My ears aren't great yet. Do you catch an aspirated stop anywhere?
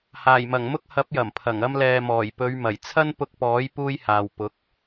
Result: yes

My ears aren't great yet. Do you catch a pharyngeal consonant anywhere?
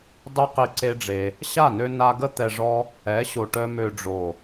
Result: no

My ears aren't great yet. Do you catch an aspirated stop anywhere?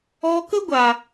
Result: no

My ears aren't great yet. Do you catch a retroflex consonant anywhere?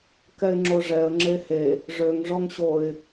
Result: yes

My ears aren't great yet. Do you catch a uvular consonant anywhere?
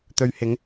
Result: no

